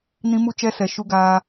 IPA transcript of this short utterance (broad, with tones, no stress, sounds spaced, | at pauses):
n ĩ˦ m u˦ t͡ʃ ɛ˦ s ɛ˨ ʃ u˦ ɡ aː˦